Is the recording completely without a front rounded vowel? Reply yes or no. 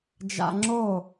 yes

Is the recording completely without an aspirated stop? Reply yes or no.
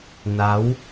yes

